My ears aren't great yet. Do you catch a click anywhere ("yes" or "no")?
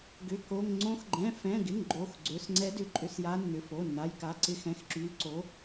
yes